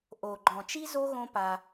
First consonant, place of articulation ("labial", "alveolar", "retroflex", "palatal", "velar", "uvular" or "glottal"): glottal